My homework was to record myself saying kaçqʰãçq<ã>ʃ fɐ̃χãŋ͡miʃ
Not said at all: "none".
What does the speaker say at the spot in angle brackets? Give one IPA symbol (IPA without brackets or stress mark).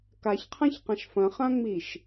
ã